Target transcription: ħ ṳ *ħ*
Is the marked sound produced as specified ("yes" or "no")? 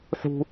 no